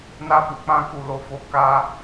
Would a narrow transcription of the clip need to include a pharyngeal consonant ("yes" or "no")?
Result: no